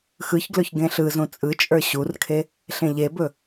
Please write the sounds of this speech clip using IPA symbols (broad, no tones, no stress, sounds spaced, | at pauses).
x ɯ ç ɡ l ɵ ç ɡ ẽ ɬ ɯ z ũ t͡sʼ ɯ t͡ʃʼ ə˞ ɕ u r kʰ e | ɬ ẽ ʎ e b ɵ